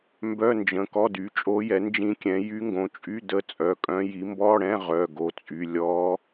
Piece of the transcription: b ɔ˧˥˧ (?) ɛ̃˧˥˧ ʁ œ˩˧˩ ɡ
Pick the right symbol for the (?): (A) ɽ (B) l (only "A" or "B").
A